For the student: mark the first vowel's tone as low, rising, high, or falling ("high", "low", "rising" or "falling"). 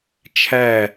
falling